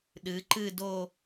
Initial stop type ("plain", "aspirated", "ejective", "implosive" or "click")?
implosive